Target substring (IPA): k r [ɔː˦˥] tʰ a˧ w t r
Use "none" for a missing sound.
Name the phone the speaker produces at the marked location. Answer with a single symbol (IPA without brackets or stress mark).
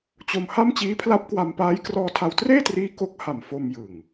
ɔː˧